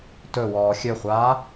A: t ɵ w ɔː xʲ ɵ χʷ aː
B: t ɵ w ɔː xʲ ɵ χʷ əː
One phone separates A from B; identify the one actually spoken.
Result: A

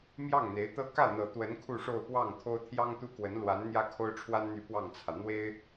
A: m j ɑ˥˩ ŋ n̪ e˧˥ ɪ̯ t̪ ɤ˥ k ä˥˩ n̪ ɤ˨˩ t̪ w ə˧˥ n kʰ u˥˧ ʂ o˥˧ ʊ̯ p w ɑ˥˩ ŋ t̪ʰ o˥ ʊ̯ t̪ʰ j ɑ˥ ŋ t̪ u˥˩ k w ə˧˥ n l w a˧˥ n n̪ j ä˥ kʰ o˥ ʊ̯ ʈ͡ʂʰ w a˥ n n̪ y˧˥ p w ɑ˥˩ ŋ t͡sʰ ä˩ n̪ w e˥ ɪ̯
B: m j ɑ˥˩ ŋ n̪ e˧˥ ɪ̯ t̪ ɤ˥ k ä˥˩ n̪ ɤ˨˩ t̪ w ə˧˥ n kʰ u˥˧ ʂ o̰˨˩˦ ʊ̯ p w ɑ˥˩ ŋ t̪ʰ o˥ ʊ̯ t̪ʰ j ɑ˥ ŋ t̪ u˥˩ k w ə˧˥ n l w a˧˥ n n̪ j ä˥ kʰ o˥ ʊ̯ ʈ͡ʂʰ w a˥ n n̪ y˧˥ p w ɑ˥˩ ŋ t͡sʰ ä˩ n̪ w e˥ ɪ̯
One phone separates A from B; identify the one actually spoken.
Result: A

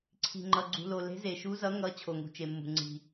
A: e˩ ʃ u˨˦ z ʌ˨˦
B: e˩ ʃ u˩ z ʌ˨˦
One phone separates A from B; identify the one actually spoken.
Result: A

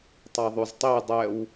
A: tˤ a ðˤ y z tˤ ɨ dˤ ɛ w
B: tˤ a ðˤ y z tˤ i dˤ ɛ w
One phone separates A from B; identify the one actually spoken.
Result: B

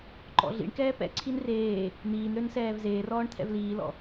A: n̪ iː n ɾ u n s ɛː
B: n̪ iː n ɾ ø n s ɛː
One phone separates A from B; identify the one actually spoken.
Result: B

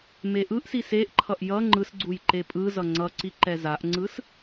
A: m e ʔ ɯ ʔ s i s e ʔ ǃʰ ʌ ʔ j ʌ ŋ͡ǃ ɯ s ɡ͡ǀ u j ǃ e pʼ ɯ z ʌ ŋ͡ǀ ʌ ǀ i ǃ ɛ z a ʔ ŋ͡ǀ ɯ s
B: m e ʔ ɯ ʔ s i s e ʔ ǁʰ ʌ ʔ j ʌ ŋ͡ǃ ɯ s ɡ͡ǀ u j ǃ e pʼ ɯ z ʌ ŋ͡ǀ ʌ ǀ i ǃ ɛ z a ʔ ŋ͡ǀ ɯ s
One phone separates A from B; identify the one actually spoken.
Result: A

